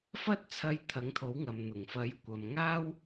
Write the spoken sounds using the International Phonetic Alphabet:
f ɐ˥ t̚ t͡sʰ ɐ˧ j t̪ʰ ɐ˨˥ ŋ t̪ʰ o˨˥ w ŋ ɐ˨ m n̪ ʊ˨˩ ŋ f ɐ˨˥ j kʷ ɐ˨ m ŋ aː˥ w

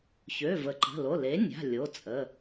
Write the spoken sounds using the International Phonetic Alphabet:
ç ø˩˧˩ v ə˩˥ ǃ ə̤˩˧˩ l o˩˧˩ l e˩˥ nʲ a̤˩˧˩ lʲ o˩˧˩ t͡sʼ ə˩˧˩

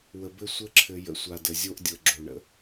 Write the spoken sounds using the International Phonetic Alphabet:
w ə˨ b ɘ˦ sʷ ɘ˦ ǁʰ ɘ˨ j ə̰˨ sʷ a˨ d ə˨ zʲ o˦ ʔ dʲ ɤ˨ ɡ͡ǁ o˨ ɳ ə̰˨

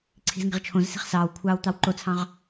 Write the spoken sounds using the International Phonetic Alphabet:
ǀʰ i̤ z ŋ e̤ ʁ t͡ʃʰ õ z s i̤ χ s ɑː w kʷʰ ɑː w t̪ ɑ w ǃ o t͡sʰ ɑ̃ ʁ

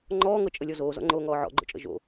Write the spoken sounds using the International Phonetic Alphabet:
ŋ͡ǃ ɔː ŋ ɤ t͡ʃʼ ə lʲ ɔ z oː z ɔ̰ ŋ͡ǃ oː ŋ ɔː ʕ ɔ̰ ɡ͡ǃ o̰ t͡ʃʼ ə̰ ʒ o̰

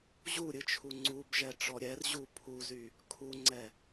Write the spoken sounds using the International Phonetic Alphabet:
ʑ u ɾʲ ɨ t͡ʃʰ u ŋ͡ǀ u b ʒ ɛ ʈ͡ʂ ɔ ɾʲ ɛ r ʑ u pʰ u z y | kʰ u ŋ͡ǀ ɛ

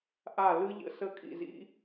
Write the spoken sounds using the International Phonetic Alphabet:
ʔ a˥˩ l ɯ˦˥ ʎ ə̰˦˥ s ə˦˥ kʼ ḭ˥˩ z ḭ˦˥

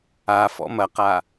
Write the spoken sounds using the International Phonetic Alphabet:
a f ɔ̰ m ɐ q a

